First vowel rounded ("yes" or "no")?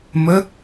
no